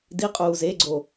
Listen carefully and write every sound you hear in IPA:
d i qʼ uː z e ɡ͡ǀ o

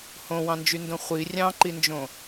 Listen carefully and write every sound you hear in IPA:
h õ w ɑ̃ n d͡ʒ y n d õ χʷ i rʲ ɑ̃ ǃ i n d͡ʒ õ

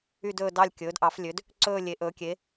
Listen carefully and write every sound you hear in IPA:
y˥˧ d ɵː˥˧ d ɑ˥˧ lʲ kʲ ɵː˩˥ d ʔ ɑ˩˥ f lʲ ø˩˥ d | ǀ ɵː˥˧ lʲ e˩˥ ʔ ɵː˩˥ kʲ e˩˥

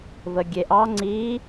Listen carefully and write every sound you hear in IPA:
v ə ɡʲ e ʔ ɑ ŋ͡ǀ i

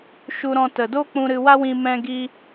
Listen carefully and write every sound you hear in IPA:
ʃ u˧ ɾ ɔ̃˧ t ə˨ d o˦ k͡p ũ˧ ɾ ɨ˧ w a˦ w ĩ˧ m ɛ̃˧ ɡ i˦

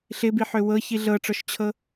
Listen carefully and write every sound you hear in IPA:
ɬ ɪ b i ħ ø w ɤ ç i ɮ ɤ ʈ͡ʂ ɔ ʃ t͡ɕʰ ɤ

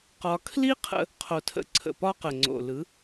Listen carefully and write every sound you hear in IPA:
q ɒ˧ kʰ l i˦ qʰ ə̰˧ | qʰ o˨ tʰ ə̰˧ ǀʰ ə̰˨ p ɒ˦ q ə˨ ŋ͡ǀ o̰˨ l ɯ˨˦

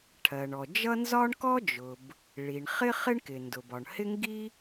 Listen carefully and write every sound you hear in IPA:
ʈʰ ɜ˩ ɳ ɔ˩ d͡ʒ ʌ˥ n z ɒ˥ ɳ k ɔ˥ d͡ʒ ʊ˩ b | ɭ i˩ ɳ χ ɪ˥ χ ɪ˥ ɳ k ɪ˩ n d ʊ˩ b ɒ˩ ɳ h ɪ˥ ŋ ɡ i˥

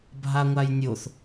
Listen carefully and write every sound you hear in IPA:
bʱ a ŋʷ a j nʲ o θ

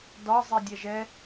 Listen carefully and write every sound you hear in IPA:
d ɒ zˤ i dʲ ɛ ʒ ɛ

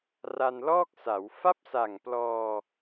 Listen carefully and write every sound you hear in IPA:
r a˧ n l ɔː˥˩ k̚ s a˩˦ w f a˥˩ p̚ s a˨˩ ŋ p l ɔː˧

